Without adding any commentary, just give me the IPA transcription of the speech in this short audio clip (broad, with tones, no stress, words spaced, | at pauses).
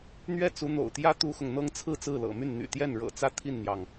n̪ɥɛ˥˩t͡su˧˥ n̪o̰˨˩ʊ̯t̪jä˥ t̪u˥xʊ˨ŋ n̪ɤ˥ŋt͡sʰɹ̩˥˧ t͡sɹ̩˥˩lɤ̰˨˩my˥˩n n̪y̰˨˩t̪jɛ˥˩nɻɤ̰˨˩t͡sä˥˧ t̪ʰi˥˩nn̪jɑ˩ŋ